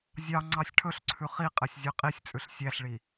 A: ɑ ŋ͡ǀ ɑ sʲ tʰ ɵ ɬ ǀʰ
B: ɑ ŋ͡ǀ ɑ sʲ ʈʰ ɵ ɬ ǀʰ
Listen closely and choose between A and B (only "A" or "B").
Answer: B